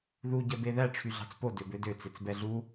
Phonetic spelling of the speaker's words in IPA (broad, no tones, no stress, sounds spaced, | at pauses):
ð u ɟ ɛ b e ð æ ʈ͡ʂʰ y ɮ ɑ̤ t͡s p o d ø b ø d ø t͡s e t͡s b ɛ ɮ u